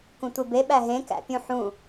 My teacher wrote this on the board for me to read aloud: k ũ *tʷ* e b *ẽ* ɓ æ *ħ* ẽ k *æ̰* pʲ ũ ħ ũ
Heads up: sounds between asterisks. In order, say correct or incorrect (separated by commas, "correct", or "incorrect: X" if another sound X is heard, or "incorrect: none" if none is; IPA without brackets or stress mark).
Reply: correct, incorrect: e, incorrect: ɦ, correct